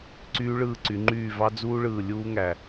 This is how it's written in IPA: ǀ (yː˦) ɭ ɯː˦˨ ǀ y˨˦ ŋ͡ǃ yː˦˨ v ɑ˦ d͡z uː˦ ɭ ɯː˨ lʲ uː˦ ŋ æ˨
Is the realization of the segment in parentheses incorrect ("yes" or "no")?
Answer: no